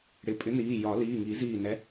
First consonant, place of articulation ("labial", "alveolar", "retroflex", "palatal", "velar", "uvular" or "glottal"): retroflex